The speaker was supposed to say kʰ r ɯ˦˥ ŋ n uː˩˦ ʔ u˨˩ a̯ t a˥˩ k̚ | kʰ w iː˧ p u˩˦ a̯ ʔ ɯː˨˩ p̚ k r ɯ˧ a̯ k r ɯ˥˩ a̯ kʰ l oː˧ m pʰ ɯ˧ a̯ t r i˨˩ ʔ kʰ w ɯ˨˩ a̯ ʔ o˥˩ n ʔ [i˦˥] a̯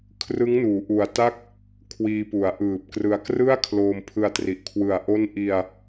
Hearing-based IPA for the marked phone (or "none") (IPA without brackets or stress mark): i˧